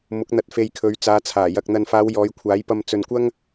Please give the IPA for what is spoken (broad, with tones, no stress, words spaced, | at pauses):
mʊ˨˥k̚n̪ɐ˧t̚fe˧j kʰɵ˨˧ɥt͡saː˨˧t͡sʰaː˨˩ jɐ˨k̚ n̪ɐ˨nfaː˨˧w jɔː˨˧jkʷʰaː˨˥j pɐ˧mt͡sɵ˨nkʷɐ˥ŋ